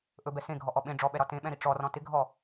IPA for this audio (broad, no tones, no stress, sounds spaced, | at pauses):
ʔ ɵ b ɛ s ẽ ɡʱ ɔ ʔ ɔ ɓ ẽ ɖ͡ʐ ɔ ɓ ɛ ɾ ɒ t ẽ ɓ ɛ̃ ɾ i ʈ͡ʂ ɔ r ɔ̃ t ɪ ɡʱ ɔ